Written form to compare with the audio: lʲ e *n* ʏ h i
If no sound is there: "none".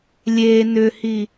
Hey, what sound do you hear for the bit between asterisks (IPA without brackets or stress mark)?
n